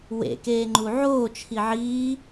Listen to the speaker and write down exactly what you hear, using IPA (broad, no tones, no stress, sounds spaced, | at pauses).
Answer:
w ḛ k eː ŋ͡ǃ u ʕ oː t͡ʃʰ i ʕ iː